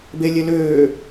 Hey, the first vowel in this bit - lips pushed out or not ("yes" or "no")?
no